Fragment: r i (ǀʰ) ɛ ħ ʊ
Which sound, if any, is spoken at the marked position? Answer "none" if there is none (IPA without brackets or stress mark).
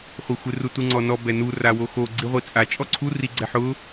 ɡ͡ǀ